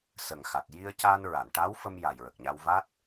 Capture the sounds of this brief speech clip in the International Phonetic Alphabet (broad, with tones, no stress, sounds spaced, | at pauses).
s ə˨˩ ŋ x a˨˩ t̚ j i˧ ə̯ c aː˧ n ɹ a˨˩˨ n ʈ a˧˥ w f ə˧ m j a˨˩ j ɹ ə˨˩ k̚ ɲ a˧ w v a˦˥ t̚